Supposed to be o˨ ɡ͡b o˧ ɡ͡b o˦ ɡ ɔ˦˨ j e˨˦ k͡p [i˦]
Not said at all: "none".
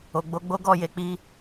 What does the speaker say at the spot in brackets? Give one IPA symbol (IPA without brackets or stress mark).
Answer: i˦